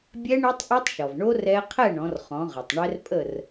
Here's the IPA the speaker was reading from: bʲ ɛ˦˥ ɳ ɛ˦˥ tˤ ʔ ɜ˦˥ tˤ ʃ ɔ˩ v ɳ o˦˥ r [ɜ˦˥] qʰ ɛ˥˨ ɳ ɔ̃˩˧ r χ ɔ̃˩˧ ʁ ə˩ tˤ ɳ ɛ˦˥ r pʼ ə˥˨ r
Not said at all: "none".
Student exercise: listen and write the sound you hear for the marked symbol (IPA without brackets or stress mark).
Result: ɛ˦˥